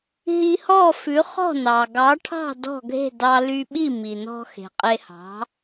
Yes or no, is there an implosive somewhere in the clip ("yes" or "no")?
yes